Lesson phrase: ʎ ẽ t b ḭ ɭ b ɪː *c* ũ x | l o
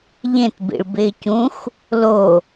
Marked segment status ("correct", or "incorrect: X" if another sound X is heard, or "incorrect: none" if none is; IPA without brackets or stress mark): correct